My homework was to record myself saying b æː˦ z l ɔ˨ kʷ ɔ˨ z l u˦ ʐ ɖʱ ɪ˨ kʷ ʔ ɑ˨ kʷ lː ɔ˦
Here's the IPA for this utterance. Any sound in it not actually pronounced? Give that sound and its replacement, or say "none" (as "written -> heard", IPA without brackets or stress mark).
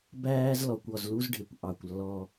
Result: ʐ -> z